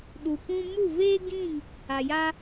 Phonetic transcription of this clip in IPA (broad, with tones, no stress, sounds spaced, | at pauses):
ɗ u˨ p ũ˧ m u˦˨ v eː˦ ɡ ĩ˦˨ ŋ | a˨ j a˧